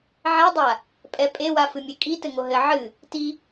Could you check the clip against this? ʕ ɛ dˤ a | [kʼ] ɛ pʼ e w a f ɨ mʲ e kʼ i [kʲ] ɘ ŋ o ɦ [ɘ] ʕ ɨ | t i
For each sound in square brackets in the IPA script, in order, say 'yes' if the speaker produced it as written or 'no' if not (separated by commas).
no, no, yes